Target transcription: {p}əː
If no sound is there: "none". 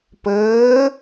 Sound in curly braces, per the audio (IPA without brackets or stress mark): p